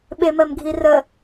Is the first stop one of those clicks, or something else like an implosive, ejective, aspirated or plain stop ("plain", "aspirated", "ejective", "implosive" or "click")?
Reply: implosive